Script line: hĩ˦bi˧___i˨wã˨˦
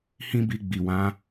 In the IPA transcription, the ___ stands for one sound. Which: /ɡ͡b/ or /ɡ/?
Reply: ɡ͡b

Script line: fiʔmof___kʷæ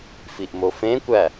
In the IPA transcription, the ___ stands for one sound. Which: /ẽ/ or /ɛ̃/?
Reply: ẽ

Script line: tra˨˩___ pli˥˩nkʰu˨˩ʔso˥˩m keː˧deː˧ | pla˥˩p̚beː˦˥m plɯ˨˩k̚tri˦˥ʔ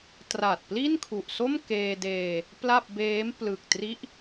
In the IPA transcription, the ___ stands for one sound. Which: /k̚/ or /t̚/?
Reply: t̚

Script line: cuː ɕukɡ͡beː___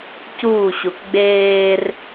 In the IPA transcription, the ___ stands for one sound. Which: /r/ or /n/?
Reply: r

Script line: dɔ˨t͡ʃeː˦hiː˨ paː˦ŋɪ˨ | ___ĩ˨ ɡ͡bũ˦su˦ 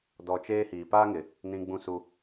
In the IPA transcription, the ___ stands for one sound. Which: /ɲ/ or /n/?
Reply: n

